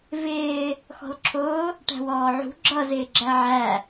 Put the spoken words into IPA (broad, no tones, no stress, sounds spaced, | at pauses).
v ɪː | x ɔ̤ l ǁʰ ʊː | ʈ æ̤ w ɔː ʕ ṳ ɡ͡ǁ ʌ z ɪː ɡ͡ǁ æ ʕ æ